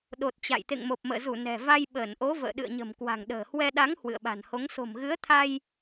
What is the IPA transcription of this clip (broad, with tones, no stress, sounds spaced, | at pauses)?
ɗ o˨˩ t̚ t͡ɕ a̰˧˨ j t̪ ḛ˧˨ ŋ m o˨˩ p̚ m ə̰ː˧˨ z u˧˩ n ɛ̤˨˩ v a˧ j ɓ əː˧˩ n ʔ o˨˦ v ə̰ː˧˨ ɗ ɨ̰˧˨ ə̯ ɲ ə̤˨˩ m k w a̤˨˩ ŋ ɗ ə̤ː˨˩ h w ɛ˧ ɗ a˨˦ ŋ h w ɨ̰˧˨ ə̯ ɓ a̤˨˩ n h o˨˦ ŋ s o̤˨˩ m ɣ ɨ˨˦ ə̯ t̪ʰ a˧ j